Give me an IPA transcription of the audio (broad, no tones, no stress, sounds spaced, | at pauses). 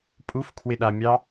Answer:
pʼ u f kʰ w ɪ ɗ a mʲ ɑ